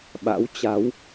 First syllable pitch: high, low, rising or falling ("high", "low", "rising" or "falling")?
rising